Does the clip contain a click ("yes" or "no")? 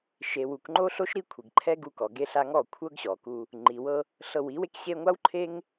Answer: yes